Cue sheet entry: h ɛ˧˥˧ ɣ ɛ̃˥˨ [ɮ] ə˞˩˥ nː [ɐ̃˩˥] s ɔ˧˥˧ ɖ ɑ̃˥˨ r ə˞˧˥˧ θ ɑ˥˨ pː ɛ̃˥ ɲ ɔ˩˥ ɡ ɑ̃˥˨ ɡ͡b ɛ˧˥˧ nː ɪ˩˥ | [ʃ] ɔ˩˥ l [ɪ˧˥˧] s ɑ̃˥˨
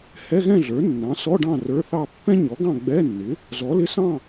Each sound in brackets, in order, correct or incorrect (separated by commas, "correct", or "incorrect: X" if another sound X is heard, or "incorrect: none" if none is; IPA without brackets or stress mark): correct, incorrect: ɑ̃˩˥, incorrect: z, correct